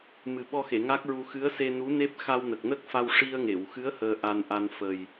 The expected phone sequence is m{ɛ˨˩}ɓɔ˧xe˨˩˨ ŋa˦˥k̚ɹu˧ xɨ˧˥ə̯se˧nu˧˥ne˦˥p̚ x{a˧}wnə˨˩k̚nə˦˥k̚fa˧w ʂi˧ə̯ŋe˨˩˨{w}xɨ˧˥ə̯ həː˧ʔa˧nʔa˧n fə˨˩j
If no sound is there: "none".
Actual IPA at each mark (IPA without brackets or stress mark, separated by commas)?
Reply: ɨ˨˩, a˧, w